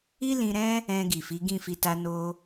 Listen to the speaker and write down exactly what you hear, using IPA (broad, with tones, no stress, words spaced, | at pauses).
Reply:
i˦lĩ˧ɾɛ̃˦ | ɛ̃˧ɡi˨fi˨˦ ɡĩ˦˨fi˧ta˧ no˦